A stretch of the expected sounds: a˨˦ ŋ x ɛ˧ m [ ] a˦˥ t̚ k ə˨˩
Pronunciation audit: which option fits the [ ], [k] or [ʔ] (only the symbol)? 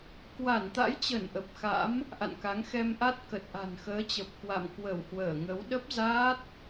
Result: ʔ